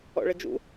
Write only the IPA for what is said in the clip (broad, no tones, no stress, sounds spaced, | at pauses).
ɔ̰ ɭ ə d͡ʒ ṵ